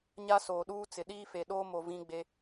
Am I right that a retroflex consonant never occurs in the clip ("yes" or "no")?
yes